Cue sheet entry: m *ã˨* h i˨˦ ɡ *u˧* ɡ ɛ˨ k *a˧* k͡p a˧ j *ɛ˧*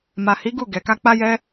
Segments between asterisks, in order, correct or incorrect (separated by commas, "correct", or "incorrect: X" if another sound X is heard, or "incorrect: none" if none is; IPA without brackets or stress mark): incorrect: a˨, incorrect: u˦˨, correct, correct